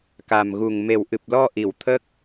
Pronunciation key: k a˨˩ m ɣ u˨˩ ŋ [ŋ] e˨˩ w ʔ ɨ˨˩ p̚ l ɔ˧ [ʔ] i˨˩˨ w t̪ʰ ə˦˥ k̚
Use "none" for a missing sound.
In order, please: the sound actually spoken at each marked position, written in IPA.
m, ʔ

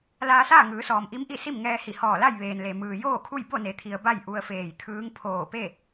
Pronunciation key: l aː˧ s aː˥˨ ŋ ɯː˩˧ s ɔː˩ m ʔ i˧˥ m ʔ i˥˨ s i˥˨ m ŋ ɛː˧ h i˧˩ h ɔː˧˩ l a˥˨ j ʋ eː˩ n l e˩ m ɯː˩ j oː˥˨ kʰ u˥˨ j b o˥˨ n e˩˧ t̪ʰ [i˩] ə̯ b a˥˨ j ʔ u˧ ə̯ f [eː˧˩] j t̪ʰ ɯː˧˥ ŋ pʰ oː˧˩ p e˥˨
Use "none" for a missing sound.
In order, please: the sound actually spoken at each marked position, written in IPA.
i˩, eː˧˩

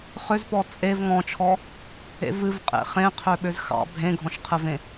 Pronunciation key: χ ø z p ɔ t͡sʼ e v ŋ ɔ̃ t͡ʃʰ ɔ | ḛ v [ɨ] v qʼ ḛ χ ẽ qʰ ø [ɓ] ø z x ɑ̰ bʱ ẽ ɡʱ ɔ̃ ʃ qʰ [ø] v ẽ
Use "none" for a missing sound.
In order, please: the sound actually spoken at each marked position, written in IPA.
ɨ, ɓ, ɘ

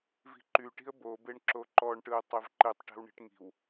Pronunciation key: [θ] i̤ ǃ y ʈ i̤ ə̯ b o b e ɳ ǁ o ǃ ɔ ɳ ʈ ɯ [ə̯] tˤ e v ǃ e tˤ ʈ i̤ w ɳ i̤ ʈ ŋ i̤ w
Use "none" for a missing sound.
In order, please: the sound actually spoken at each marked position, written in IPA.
v, ə̯

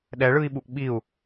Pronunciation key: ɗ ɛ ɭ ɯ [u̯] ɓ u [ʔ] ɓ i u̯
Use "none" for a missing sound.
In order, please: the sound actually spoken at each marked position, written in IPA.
i̯, ʔ

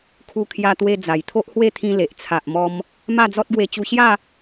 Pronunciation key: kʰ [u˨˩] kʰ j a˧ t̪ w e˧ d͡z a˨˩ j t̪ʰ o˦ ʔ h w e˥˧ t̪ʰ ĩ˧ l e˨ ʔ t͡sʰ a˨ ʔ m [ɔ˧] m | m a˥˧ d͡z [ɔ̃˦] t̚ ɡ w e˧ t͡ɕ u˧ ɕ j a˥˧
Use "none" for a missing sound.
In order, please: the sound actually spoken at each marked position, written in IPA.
u˧, ɔ˧, ɔ˦

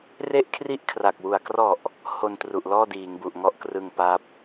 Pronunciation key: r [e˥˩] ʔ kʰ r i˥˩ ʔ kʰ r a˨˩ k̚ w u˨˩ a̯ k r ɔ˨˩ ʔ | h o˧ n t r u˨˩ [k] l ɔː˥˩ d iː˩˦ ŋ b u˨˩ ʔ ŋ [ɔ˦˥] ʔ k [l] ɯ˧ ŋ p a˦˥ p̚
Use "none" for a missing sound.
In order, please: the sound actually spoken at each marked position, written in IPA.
e˥˩, ʔ, ɔ˦˥, r

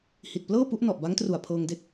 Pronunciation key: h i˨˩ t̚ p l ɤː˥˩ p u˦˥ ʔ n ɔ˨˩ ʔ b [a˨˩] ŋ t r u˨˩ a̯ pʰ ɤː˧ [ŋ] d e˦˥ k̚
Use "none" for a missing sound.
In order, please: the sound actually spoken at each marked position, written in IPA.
a˦˥, ŋ

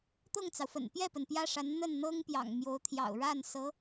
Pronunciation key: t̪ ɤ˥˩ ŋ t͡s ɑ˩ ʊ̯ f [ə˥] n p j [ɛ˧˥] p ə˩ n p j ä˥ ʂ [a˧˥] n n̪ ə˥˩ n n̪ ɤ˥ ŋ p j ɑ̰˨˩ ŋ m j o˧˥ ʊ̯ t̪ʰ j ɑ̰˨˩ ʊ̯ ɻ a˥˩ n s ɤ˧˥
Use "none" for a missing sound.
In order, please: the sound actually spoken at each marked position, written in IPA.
ə̰˨˩, ɛ˥˩, a˧˥

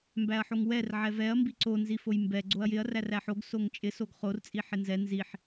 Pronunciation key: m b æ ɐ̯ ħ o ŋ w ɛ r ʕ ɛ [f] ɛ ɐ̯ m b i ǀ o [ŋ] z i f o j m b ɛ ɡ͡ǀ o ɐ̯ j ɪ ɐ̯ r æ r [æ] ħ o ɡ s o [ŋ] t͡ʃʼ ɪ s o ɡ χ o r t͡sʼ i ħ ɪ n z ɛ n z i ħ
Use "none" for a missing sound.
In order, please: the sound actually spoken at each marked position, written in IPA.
v, n, æ, ŋ

